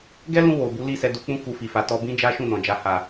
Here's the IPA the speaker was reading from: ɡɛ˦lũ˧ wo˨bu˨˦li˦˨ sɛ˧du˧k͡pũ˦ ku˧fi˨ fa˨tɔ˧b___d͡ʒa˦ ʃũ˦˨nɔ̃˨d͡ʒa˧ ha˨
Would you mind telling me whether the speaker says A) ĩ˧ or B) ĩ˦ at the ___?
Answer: B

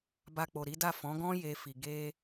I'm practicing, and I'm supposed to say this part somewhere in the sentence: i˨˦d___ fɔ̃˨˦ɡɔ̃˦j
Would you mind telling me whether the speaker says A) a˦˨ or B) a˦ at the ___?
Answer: A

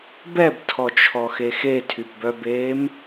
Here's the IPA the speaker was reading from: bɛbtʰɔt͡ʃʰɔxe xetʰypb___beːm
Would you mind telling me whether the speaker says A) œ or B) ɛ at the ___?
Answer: A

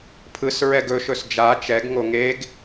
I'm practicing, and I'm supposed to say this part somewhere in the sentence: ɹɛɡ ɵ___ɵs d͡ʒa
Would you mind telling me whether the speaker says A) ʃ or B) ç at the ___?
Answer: A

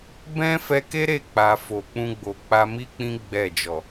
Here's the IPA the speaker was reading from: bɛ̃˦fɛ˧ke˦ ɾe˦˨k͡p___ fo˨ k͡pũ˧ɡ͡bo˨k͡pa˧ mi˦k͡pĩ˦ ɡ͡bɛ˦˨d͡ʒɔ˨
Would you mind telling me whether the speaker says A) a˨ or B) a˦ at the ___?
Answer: A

